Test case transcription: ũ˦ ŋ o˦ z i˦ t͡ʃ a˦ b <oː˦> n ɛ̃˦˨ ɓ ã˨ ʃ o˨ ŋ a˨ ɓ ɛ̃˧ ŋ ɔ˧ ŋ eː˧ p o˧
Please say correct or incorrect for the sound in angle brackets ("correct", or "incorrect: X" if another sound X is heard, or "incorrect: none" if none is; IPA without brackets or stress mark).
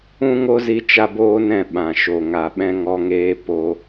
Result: correct